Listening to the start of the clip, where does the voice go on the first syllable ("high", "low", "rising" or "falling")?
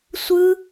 high